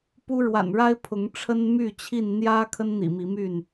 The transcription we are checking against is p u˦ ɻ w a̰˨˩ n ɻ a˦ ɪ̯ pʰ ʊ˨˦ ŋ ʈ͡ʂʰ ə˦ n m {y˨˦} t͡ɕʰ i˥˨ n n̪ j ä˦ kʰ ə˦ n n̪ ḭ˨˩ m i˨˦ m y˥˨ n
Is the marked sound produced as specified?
no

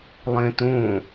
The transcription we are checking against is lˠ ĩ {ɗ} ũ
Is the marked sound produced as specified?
no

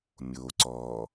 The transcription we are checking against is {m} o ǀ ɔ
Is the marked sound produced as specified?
no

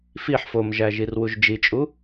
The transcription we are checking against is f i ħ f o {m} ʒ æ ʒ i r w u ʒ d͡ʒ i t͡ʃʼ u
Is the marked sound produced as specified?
yes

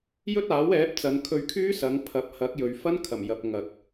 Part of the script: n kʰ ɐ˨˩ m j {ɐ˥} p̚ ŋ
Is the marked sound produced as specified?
no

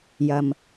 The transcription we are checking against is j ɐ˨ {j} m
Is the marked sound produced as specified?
no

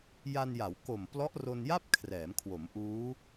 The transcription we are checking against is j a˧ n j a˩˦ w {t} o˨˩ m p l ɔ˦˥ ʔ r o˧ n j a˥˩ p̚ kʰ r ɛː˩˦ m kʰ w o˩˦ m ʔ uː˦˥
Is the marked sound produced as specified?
no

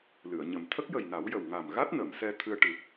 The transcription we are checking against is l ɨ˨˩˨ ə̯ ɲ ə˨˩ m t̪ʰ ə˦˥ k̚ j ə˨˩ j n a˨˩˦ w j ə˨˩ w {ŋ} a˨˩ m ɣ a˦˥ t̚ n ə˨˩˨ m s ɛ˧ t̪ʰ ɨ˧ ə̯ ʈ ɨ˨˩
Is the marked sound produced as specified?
yes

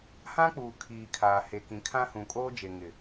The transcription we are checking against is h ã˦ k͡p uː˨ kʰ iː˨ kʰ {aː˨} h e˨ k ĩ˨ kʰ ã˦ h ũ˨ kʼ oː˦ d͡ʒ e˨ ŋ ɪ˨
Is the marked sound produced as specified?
yes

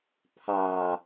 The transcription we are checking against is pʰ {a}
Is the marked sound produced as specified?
yes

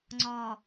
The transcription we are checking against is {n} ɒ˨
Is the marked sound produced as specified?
no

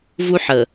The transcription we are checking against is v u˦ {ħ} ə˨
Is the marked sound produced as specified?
yes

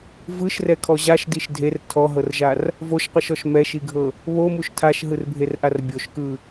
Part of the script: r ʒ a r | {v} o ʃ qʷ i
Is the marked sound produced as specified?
yes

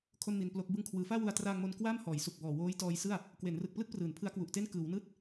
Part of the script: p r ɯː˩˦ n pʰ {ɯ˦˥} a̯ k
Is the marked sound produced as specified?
yes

